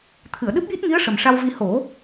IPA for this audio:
t̪ʰ ɨ˨˩˨ ə̯ ɗ ɨ˦˥ p̚ j i˦˥ t̚ ŋ i˧˥ ə̯ ʂ ə˨˩ m ʂ a˧ w v i˧ h o˨˩˦

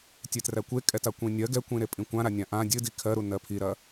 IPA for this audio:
tʲ e t r æ kʷ e kʼ ɛ t a kʷ ĩ nʲ ɜ ɡ ɛ kʷ ĩ ɾ e pʼ ĩ kʷ ã ɾ a nʲ ã ʔ ã dʲ ɨ d i kʰ ɜ ɾ u n ɜ pʰ i ɾ ɐ

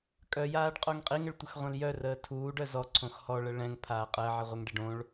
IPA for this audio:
kʼ œ j aː ɖ qʼ o ŋ qʼ i ŋ ə ɭ tʷ ə x ʁʷ ɛ̃ l j œ r əː tʰ uː ɖ œ z ɔ ǀʰ õ x h ɔ ɭ ə ɭ ɛ̃ ŋ pʰ aː qʼ əː ʕ i ʁʷ œ ŋ ɖ e ɖ õ ɭ

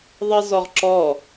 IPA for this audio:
ðˤ i z ɔ ʁ ǁ ɔ

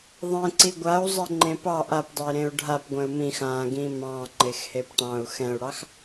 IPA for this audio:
ðˤ ẽ ǀ i ɡʷ a u̯ zˤ ɛ ŋ͡ǃ ẽ p ɑ ʔ a p dˤ e i̯ ɾ ẽ u̯ ɖʱ a p ɡʷ ɛ̃ u̯ m ĩ x ã ɡ ĩ m ɑ̃ ŋ͡ǃ e x h e p ʈ ɑ̃ u̯ x ɛ̃ u̯ ɽ ɑ x

